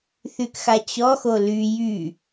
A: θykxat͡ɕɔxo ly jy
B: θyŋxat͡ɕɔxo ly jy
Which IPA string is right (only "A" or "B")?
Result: A